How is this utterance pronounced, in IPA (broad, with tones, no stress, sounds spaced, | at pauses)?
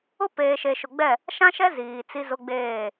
ʊ˦ p eː˨ ʃ e˨ ʃ ʊ˨ ɡ͡b ɛ˦˨ | ʃ ã˦ ʃ ɛ˦ z iː˨ t͡s i˦ z ʊ˦ ɡ͡b eː˦˨